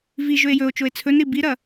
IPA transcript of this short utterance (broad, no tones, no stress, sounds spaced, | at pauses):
v i ʒ ɵ e̯ j ɵ o̯ t͡ʃ o e̯ t͡sʰ ɵ n ɾ i b i ɾ ɐ